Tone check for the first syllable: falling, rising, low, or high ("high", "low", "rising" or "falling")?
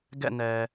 falling